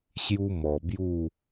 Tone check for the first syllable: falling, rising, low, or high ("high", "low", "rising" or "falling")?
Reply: high